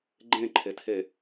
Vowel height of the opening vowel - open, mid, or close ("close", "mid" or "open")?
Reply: mid